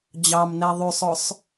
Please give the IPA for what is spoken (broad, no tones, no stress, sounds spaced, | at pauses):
d͡ʑ ɑ m n ɛ ðˤ y sˤ ɵ sˤ